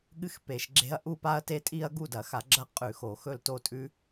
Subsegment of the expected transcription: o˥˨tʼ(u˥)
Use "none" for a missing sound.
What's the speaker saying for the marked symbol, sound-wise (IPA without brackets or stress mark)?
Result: ʉ˥